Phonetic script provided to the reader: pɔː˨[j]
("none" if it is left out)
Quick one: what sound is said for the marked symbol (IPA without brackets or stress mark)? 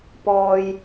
j